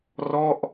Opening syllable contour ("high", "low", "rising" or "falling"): falling